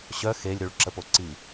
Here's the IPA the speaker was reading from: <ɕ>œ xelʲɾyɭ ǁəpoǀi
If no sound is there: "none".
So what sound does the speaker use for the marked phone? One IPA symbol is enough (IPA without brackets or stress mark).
ɕ